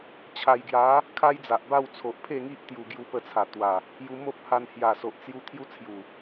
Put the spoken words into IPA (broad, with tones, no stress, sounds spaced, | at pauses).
t͡ɕʰ a˨˩ j ɡ j a˨˦ | kʰ a˦ j d͡z a˨ ʔ b a˥˧ w t͡sʰ o˨ ʔ pʰ e˥˧ ŋ i˦ ʔ t̪ j u˨˩ ɡ j u˧ p ə˧ t͡sʰ a˨˩ t̪ w a˨˩ | j u˧ m o˦ p̚ h a˧ n h j a˨˩ s o˨ ʔ t͡s j u˧ t̪ʰ j u˦ t͡sʰ j u˨˩